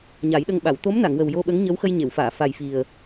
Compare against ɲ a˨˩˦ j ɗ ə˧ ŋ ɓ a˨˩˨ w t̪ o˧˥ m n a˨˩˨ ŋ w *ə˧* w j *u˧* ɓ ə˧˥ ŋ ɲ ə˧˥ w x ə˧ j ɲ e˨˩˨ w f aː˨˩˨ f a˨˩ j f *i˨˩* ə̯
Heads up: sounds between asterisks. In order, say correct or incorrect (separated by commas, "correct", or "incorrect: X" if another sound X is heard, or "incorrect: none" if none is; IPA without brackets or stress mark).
incorrect: ə˨˩, incorrect: o˧, correct